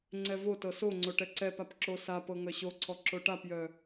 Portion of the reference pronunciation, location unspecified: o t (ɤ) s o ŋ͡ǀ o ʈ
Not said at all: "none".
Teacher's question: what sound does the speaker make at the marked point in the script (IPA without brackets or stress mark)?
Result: ɤ